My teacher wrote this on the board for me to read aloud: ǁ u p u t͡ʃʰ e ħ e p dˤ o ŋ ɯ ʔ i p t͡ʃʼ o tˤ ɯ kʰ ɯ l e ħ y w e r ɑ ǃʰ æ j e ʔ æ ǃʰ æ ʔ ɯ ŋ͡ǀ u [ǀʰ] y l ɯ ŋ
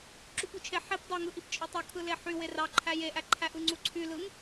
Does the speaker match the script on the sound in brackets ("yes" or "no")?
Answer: yes